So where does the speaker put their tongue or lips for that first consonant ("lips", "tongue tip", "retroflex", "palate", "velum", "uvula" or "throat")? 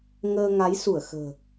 velum